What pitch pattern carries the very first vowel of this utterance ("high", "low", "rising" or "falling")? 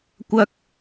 high